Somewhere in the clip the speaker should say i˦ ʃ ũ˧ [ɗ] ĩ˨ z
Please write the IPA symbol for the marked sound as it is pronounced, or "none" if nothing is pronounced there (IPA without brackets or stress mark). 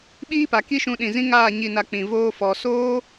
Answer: ɗ